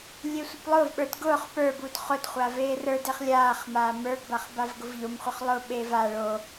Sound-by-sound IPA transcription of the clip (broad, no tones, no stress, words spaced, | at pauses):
lʲesʷəplˠʊːvɓə˞d ɡʊːχ pə˞bud χʊdχʷa veːrə˞deχ lʲaːχmaː mə˞ɡbaχ bavɡʊvʎomχʷəχ lˠʊːɓeː va ɭo